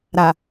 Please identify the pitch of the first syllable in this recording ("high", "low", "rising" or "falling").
low